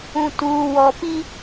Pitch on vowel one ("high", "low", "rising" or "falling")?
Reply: low